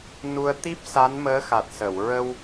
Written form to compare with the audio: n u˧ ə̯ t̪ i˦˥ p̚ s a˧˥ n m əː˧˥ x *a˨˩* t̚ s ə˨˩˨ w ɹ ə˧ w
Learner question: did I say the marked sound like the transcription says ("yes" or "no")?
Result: yes